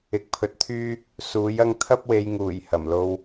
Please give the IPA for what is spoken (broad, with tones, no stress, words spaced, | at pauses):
ɪ˨˥k̚pʰɵ˨t̚t̪ʰyː˥ | suː˨˥j ɐ˧ŋ t̪ʰɐ˥p̚we˨˧jŋuː˨˩j hɐ˨˩mlo˧w